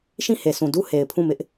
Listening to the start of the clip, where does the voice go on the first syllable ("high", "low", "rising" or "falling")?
falling